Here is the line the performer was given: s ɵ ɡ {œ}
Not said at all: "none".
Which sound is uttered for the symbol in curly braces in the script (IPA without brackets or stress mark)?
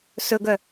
œ